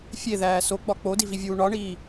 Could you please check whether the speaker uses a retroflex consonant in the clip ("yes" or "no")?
yes